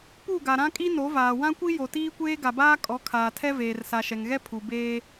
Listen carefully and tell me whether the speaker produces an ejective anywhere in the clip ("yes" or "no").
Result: yes